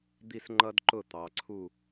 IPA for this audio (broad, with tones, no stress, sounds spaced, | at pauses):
d̪ i˥˨ s ŋ͡ǃ ʌ˦ d ǃ ʊ˥˨ t̪ ɑ˩˧ ǀʰ u˥˨